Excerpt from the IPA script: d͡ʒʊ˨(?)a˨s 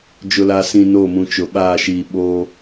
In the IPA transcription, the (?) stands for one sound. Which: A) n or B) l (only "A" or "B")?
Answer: B